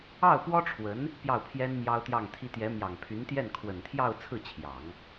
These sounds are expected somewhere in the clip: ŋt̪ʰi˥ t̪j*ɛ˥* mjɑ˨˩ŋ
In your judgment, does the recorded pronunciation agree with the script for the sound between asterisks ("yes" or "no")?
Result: no